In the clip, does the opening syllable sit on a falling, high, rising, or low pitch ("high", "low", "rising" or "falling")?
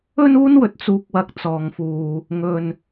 high